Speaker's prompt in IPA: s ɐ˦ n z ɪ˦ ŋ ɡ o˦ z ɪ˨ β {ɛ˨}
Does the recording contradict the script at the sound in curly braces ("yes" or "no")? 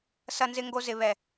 no